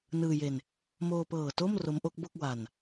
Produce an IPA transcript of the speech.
n ɯː˧ j e˧ n | m oː˧ p ɤː˨˩ t o˥˩ m r o˦˥ m ʔ o˦˥ k̚ b o˥˩ k̚ w a˧ n

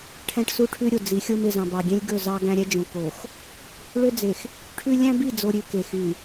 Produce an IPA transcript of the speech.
ʈʰ æ̃˦ ʈ s u˦ ʈʰ ʉ˦ ɾʲ o˨ d͡z i˨˦ xʲ o˦ m e˨ z ɑ̃˨ b ɑ˨ ɡʲ ẽ˦ lʲ ɡ ɵ˦˨ z ɑ˦ ɡ æ̃˦ ɾʲ ɛ˦ d͡ʒ õ˨ k o˨ x | ɭ ø˦ d͡z e˨ x | ʈʰ ʉ˦ lʲ æ̃˦ b i˦˨ d͡z o˨ ɾʲ ʉ˨ k e˨ x y˨

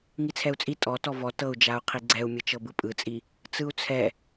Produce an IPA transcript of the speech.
ŋ i t͡sʰ ɛ u̯ t͡sʼ i tʼ ɔ t ɔ v ɔ t ɤ u̯ d͡ʒ a u̯ qʰ i ɡ͡ǀ ɛ u̯ mʲ ɯ t͡ʃ ɤ b ɯ pʼ ɯ t͡sʼ i | t͡s ɯ u̯ t͡sʰ ɛ

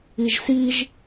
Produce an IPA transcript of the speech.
i ʒ s i ʒ

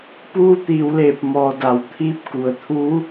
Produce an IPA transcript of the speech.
p uː˧ t̪ iː˩ w l eː˧˩ p̚ m ɔː˩ d a˩ w t̪ʰ iː˧˥ p̚ k u˩ ə̯ t̪ʰ uː˧˥

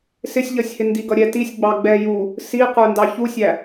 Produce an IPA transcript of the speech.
s ɪ sʲ ʎ ʌ sʲ h ɪ n d i ɡ ʌ ɾʲ ɛ t i sʲ ɡ͡b ɑ ɡ͡b ɛ j u | s i q ə˞ n d ɑ ç u sʲ æ

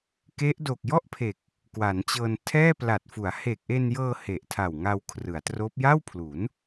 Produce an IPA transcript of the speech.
k e˦˥ ʔ d o˨˩ k̚ j ɔ˥˩ ʔ pʰ e˨˩ k̚ | k w a˩˦ n t͡ɕ ɤː˧ n tʰ ɛː˥˩ p l a˨˩ t̚ f u˩˦ a̯ h e˨˩ k̚ ʔ e˧ n j ɤː˧ h e˨˩ ʔ tʰ a˨˩ w ŋ a˧ w kʰ r ɯ˩˦ a̯ t r oː˦˥ p̚ j a˥˩ w pʰ l u˩˦ n

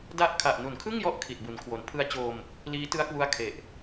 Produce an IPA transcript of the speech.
d a˦˥ ʔ kʰ a˨˩ ʔ n u˩˦ n kʰ ɯ˥˩ ŋ j ɔ˦˥ ʔ kʰ i˨˩ t̚ b u˩˦ n kʰ w o˨˩ n pʰ ɯ˧ a̯ t͡ɕ oː˧ m | l iː˦˥ t ɯ˦˥ a̯ k w u˦˥ a̯ kʰ e˨˩ ʔ

